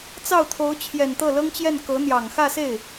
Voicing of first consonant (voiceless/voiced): voiceless